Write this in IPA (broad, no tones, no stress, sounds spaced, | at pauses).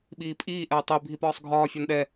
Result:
ɓ iː pʼ iː ʔ ɛ i̯ tˤ i bʱ i p ɒː sˤ ɡʱ ɒː fʲ ɒ n ɗ ɛ